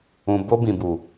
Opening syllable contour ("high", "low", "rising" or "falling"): low